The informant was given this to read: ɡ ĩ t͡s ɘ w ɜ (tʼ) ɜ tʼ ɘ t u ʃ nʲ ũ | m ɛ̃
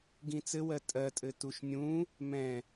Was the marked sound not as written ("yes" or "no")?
no